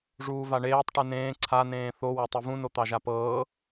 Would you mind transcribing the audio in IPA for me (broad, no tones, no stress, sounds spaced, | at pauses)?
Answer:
ʐ uː v a ɳ eː tˤ ʈ ɨ n ẽː ǀʰ a n ẽː θ o w ɛ tˤ ɨ v ũ n o t̪ ɑ ʒ a p ɤː